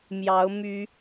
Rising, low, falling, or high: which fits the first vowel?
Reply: rising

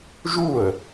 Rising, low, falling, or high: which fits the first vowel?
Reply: falling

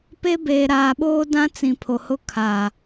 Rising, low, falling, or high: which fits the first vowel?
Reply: high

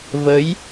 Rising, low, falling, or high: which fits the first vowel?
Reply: rising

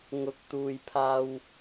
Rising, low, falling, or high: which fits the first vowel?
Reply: low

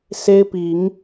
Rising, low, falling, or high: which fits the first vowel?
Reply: high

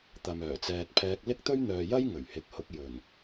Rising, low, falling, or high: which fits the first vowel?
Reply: low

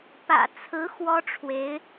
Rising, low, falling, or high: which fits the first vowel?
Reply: low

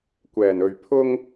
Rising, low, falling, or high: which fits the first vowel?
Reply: low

